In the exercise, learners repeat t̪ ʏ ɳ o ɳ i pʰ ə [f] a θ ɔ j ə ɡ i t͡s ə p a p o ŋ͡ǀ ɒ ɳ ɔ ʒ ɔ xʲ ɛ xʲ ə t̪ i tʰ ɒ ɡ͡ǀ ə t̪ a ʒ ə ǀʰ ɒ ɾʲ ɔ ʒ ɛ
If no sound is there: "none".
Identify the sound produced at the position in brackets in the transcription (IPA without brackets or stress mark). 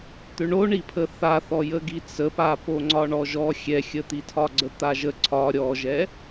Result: θ